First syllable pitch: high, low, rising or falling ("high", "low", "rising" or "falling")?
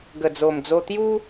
low